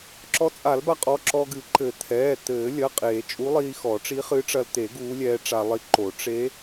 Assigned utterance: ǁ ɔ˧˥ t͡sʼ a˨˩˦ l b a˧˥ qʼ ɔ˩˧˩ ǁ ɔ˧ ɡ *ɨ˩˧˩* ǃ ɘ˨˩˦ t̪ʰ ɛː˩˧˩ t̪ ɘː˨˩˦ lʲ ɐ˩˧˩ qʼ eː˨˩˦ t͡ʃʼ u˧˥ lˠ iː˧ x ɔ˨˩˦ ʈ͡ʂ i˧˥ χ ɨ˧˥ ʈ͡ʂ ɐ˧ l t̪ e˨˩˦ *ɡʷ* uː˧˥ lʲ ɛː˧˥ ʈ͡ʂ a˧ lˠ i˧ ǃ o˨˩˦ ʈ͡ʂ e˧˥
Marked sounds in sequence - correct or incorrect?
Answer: incorrect: ɨ˨˩˦, incorrect: ɡ

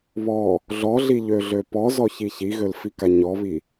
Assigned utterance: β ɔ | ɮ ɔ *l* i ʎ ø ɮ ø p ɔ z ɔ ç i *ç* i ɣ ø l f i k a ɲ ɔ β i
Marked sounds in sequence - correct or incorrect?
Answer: incorrect: ɮ, correct

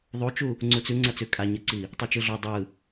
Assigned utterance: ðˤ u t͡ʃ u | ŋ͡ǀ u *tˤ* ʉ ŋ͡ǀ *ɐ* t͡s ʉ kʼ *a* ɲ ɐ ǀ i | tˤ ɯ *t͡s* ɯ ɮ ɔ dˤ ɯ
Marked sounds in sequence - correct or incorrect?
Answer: incorrect: t͡s, correct, correct, incorrect: t͡ʃ

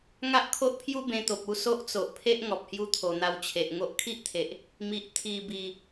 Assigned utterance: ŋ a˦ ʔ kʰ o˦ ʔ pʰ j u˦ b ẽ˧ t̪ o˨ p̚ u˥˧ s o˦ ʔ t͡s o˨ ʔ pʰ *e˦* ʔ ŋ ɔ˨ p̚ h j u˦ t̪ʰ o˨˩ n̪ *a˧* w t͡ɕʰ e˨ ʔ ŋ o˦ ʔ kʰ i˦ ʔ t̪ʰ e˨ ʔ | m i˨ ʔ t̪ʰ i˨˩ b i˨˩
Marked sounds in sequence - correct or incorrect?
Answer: correct, correct

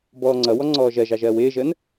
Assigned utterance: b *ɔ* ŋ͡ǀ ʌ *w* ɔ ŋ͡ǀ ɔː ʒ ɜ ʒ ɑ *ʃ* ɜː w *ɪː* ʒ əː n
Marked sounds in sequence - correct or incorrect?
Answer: incorrect: ɔː, correct, incorrect: ʒ, correct

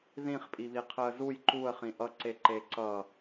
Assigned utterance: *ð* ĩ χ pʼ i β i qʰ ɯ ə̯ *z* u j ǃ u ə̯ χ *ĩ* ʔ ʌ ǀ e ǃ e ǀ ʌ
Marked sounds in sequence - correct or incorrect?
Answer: correct, correct, correct

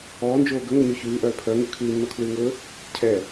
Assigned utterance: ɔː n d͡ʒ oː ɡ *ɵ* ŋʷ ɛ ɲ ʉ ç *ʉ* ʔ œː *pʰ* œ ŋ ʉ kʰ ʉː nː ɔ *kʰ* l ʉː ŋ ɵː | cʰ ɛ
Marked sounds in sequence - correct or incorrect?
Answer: correct, incorrect: ʉː, correct, correct

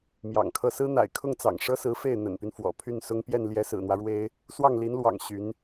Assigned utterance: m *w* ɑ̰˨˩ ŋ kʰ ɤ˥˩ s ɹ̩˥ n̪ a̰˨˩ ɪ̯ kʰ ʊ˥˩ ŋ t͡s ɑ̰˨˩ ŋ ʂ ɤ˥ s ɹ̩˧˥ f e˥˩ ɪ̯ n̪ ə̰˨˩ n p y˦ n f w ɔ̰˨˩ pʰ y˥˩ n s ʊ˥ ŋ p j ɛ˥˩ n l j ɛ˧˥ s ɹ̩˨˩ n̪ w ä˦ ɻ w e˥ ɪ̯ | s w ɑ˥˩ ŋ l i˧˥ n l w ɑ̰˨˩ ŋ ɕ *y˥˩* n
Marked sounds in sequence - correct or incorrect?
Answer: incorrect: j, incorrect: y˧˥

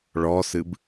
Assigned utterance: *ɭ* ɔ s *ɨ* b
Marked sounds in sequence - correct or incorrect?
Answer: correct, correct

